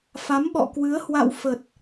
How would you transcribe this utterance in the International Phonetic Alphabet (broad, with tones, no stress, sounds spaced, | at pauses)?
f a˨˦ m ɓ ɔ̰˧˨ k w ɨ˨˦ ə̯ h w a̰˧˨ w f ə˨˩ t̚